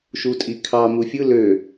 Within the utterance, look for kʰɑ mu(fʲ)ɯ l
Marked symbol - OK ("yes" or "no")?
yes